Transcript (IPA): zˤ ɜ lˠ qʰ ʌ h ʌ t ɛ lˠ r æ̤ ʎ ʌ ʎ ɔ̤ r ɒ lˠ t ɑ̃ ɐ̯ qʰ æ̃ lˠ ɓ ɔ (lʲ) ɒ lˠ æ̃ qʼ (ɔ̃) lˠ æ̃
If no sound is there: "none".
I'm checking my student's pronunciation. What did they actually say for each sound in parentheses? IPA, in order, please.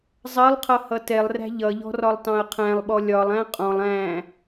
lʲ, ɔ̃

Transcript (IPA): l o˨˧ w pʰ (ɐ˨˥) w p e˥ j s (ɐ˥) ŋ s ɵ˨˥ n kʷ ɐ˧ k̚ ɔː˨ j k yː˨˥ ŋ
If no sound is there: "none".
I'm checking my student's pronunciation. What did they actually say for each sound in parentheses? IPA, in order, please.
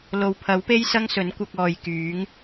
ɐ˨˥, ɐ˥

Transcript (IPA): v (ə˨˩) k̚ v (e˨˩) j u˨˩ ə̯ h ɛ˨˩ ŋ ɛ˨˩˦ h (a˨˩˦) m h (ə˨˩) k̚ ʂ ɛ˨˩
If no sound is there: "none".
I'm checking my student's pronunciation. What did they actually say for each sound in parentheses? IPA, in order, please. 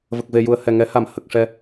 ə˨˩, e˨˩, a˨˩˦, ə˨˩

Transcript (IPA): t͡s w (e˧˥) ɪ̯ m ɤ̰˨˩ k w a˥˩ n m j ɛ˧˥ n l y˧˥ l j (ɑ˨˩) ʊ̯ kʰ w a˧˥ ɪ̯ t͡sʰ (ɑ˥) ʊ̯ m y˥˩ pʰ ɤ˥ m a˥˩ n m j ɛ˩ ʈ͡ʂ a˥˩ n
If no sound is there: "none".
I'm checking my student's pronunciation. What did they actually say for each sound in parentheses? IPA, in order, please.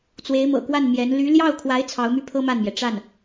e˧˥, ɑ˥˩, ɑ˧˥

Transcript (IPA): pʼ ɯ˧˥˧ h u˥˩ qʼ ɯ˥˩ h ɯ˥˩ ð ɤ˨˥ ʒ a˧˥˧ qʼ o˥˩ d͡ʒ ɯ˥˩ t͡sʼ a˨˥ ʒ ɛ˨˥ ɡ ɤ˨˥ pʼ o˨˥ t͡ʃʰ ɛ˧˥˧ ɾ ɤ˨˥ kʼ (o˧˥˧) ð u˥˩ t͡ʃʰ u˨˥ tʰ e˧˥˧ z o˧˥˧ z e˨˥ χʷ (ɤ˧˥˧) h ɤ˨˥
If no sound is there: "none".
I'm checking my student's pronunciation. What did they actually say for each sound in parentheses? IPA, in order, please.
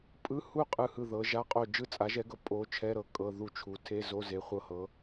ɤ˧˥˧, ɤ˧˥˧

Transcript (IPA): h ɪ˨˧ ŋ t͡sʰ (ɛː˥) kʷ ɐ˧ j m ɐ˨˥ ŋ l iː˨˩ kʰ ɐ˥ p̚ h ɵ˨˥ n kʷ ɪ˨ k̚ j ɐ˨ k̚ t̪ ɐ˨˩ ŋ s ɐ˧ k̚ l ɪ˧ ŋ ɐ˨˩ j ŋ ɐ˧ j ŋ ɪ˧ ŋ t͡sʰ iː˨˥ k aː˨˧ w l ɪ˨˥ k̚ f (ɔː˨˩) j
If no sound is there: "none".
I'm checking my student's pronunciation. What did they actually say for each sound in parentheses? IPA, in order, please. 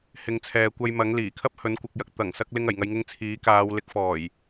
ɛː˨, ɔː˨˩

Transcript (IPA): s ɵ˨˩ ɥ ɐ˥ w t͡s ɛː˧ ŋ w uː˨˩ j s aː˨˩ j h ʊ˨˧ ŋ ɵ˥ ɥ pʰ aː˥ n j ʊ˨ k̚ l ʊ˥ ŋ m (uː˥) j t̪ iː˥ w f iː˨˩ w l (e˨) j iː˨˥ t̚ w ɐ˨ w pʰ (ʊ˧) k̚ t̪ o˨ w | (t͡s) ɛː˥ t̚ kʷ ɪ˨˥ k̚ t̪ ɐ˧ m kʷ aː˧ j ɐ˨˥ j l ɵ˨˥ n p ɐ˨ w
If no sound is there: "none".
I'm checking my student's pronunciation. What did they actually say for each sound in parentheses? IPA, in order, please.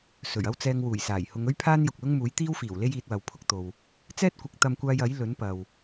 uː˨˥, e˥, ʊ˧, t͡s

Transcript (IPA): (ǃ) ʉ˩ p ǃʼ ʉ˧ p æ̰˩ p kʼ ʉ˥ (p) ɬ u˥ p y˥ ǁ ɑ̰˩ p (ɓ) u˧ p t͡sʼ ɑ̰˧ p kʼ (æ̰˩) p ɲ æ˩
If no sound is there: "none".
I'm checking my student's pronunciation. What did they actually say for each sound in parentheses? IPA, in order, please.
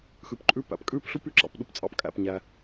x, p, ɗ, æ̰˩

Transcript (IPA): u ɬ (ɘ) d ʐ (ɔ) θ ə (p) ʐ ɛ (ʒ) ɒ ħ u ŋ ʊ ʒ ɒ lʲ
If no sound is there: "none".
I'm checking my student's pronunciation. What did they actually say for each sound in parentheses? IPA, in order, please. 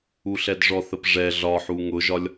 ɛ, ɔ, p, ɮ

